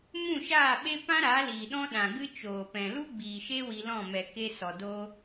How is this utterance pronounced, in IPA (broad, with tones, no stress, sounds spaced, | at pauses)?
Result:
m ũ˦˨ ʃ aː˦˨ ɓ e˦ p ã˦ ɾ a˨˦ l iː˨ ɗ ɔ̃˦ ɗ ã˨ ɡ ɨ˦ t͡ʃ oː˨ p ɛ̃˨ l u˦ ɡ͡b iː˨ ʃ e˦ w i˧ l ɔ̃˦˨ m ɛ˨ k e˧ s ɔ˨ d o˦